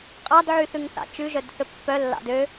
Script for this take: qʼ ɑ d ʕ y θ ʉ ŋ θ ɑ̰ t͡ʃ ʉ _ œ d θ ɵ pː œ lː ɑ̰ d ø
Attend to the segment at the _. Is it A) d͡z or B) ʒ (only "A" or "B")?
B